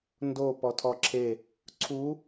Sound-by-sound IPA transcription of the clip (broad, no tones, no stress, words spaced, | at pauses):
ndo pɔtʰɔǁʰe | ǀʰu